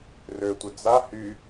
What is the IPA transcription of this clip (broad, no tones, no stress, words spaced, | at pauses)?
røtʷə d͡za hy